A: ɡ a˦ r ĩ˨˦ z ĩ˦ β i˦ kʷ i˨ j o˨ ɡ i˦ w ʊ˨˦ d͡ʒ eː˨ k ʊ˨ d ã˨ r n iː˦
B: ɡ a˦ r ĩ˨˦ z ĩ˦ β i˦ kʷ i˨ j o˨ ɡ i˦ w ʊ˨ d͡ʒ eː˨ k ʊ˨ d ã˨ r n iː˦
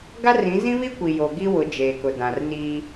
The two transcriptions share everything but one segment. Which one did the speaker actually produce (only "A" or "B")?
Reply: A